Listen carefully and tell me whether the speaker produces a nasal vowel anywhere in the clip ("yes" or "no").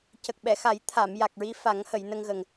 no